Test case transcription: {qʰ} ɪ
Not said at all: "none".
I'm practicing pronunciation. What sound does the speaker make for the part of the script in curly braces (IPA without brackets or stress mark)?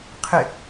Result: qʰ